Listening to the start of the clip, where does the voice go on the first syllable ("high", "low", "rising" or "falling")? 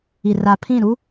low